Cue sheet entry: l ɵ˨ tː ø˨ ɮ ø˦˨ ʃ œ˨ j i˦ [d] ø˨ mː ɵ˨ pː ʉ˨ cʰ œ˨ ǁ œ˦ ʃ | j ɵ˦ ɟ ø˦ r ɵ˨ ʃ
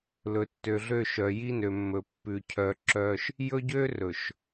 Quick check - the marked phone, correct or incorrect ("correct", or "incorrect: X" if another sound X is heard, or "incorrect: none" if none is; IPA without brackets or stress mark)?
incorrect: n